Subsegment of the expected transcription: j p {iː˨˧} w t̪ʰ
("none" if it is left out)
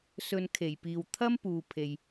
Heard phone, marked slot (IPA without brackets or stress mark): iː˨